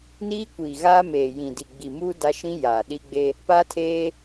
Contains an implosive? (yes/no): yes